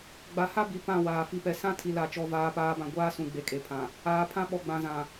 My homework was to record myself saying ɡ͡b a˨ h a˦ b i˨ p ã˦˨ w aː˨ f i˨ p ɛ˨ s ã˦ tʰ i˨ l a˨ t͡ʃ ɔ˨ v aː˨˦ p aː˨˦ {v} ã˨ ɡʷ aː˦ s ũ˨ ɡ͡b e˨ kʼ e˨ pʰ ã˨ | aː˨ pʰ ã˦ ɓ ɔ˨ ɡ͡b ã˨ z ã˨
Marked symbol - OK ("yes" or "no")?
no